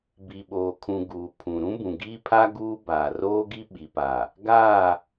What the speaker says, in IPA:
b i˨ ɓ oː˨ kʰ ũ˨ ɡ uː˨ pʰ ũ˨ ɾ ũ˦ b ũ˨ ɡ iː˦ pʰ a˦ ɡ uː˦ b aː˨ r oː˦ ɡ i˦ ɓ i˨ p a˨ | ɡ aː˦˨

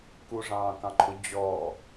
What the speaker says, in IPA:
k u ʐ ɑ̃ː k ɑ̃ ǃʰ ʊ d͡ʑ ɔ

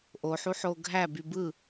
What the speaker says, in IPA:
ʔ o ħ u ħ o ɡʱ æ b y b ɯ

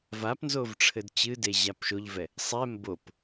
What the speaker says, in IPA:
v a p n z o v ʈ͡ʂʰ ɘ d t͡ɕ ɨ d e ʑ a p ʃ o ʎ v ɛ | sˤ ɛ m b o p

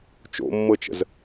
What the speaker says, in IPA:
t͡ʃ o̰ mː ɤ t͡ʃ ə̰ z

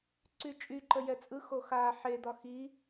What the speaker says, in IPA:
ǀ y t͡ʃʼ y ǃ ə j ɛ t͡sʼ ɯ x o x a ħ e d̪ ɒ x i

